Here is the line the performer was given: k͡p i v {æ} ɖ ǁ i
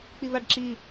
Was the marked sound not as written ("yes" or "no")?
yes